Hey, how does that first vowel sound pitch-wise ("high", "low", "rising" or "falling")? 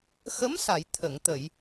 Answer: rising